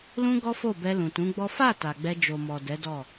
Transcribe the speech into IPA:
l ũ˦ ɡ ɔ˦ f o˦˨ b ɛ˧ l ũ˨ t ũ˨˦ ɡ͡b ɔ˦ f a˦˨ t a˨ ɡ͡b ɛ˧ d͡ʒ o˨ m ɔ˨ d ɛ˨˦ d ɔ˦˨

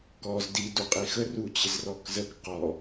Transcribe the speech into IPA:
k ɔ z d i d u qʼ i x ə r u t͡ɕ ɪ z r ɔ k z ə k q ɔ

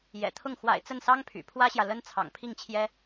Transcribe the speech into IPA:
j ɛ̰˨˩ t̪ʰ ʊ˥˩ ŋ x w a̰˨˩ ɪ̯ t͡s ə˥˩ n s ɑ˥ ŋ pʰ y̰˨˩ pʰ w ä˥ ɕ j ä˨ l ə˥ n t͡sʰ ɑ̰˨˩ ŋ pʰ i˥˩ ŋ t͡ɕʰ j ɛ˥

